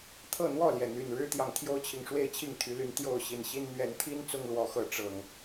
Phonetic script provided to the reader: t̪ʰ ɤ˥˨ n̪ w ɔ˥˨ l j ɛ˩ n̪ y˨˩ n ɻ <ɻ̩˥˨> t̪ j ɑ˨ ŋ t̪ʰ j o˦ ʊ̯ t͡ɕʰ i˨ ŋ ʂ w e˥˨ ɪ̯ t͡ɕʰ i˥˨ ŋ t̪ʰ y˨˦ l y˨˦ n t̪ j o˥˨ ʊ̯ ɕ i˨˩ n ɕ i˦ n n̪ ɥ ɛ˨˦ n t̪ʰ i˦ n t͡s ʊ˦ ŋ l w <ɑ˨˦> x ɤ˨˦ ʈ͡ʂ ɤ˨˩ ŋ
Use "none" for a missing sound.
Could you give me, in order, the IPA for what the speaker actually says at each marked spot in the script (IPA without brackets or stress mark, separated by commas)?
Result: ɻ̩˦, ɔ˨˦